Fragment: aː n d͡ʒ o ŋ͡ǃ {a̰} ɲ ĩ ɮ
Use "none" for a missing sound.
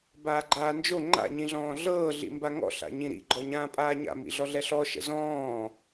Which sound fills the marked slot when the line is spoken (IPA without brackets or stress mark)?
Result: a̰